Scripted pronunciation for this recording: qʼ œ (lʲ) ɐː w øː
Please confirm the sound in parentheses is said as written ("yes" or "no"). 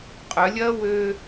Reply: yes